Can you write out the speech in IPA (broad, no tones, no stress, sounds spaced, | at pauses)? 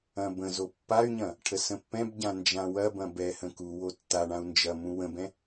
ɐ̃ b ə̃ z o pː a y̯ ɲ ɐ̃ | ʈʰ ə s ə̃ pː ɛ̃ b ɟ ã n d͡ʒ ã w ɐ b ɐ̃ b ɛ h ə̃ k u w o tː a ɳ ã u̯ n d͡ʒ ɐ m ũ w ə̃ b ɛ̃